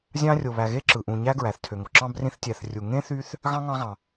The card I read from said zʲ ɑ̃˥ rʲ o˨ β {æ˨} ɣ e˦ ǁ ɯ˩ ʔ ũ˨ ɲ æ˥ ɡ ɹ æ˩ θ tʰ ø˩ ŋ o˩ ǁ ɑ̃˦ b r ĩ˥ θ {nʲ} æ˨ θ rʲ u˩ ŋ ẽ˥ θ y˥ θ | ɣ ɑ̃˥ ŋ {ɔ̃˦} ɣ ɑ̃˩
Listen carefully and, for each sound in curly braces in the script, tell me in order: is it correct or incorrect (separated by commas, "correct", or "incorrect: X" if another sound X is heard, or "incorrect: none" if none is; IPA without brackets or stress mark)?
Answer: correct, incorrect: tʲ, incorrect: ɑ̃˦